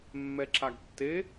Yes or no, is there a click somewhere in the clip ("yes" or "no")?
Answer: yes